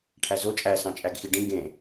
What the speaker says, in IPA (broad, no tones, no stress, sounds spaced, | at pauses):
ʈʰ æ z o t͡ʃʼ æ s ɑ̃ t͡ʃʼ æ ɡ x i ɖ ĩ ɡ ẽ